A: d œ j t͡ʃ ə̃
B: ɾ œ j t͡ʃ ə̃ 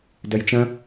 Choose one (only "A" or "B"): A